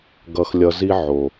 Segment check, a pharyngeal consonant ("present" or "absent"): present